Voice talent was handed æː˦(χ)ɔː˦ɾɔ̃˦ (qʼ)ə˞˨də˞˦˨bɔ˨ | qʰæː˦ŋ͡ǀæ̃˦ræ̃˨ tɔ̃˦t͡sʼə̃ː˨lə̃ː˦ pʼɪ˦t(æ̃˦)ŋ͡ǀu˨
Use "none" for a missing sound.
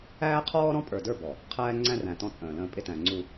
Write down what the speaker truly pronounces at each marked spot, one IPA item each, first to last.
qʰ, pʼ, æ̃˨

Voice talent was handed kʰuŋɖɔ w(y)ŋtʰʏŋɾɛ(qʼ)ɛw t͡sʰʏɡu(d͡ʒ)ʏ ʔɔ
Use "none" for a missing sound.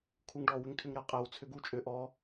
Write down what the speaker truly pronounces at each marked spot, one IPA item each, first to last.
ʏ, qʼ, t͡ʃʼ

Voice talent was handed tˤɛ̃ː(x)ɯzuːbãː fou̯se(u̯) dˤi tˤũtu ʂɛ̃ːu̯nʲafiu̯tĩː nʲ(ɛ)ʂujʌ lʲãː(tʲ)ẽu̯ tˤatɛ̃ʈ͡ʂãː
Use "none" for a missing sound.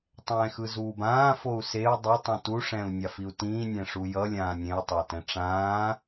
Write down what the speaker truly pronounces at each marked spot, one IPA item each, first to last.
x, u̯, ɛ̃, nʲ

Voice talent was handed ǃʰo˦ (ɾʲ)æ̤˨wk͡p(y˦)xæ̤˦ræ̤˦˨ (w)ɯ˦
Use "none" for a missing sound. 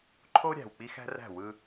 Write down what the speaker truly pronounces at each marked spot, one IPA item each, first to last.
ɾʲ, i˦, w

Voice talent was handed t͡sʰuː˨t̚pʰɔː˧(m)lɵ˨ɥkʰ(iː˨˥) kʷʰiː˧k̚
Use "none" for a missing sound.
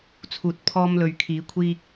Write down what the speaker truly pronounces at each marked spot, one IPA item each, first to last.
m, iː˨˥

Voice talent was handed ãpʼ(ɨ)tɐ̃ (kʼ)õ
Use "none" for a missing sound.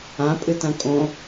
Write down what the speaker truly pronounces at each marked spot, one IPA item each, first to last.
ɨ, kʼ

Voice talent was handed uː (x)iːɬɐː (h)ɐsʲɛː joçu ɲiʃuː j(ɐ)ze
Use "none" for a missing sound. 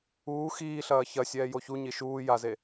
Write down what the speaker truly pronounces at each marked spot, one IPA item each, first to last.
x, ç, a

